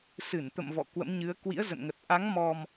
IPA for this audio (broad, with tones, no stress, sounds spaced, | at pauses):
s ɨ˧˩ n t̪ ə̰˧˨ m v ɔ̰˧˨ k w ə̰˧˥ m ɲ ɨ˨˦ ə̯ k w ḭ˧˥ ə̯ z ə̰˧˨ n ŋ ə˨˩ t̚ ʔ a˨˦ ŋ m ɔ˨˩ m